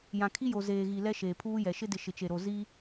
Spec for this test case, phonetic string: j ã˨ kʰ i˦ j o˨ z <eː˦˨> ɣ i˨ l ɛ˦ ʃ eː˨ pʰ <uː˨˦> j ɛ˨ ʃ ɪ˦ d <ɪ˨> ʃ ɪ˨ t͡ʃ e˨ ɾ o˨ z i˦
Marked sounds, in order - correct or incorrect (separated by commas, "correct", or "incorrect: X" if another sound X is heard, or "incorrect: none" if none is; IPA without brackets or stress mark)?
incorrect: eː˨, incorrect: uː˦, correct